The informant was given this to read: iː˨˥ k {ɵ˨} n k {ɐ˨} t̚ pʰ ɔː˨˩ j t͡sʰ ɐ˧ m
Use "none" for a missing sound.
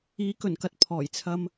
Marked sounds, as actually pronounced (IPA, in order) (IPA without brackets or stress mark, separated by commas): ɵ˨˩, ɐ˧